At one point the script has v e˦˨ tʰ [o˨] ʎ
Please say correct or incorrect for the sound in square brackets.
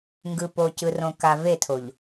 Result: correct